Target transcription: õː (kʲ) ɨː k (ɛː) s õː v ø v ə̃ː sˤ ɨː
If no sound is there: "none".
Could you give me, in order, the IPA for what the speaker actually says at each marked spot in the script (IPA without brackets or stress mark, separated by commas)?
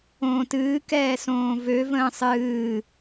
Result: t, ɛː